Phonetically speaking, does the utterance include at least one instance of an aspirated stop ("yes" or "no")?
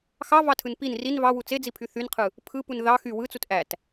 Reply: yes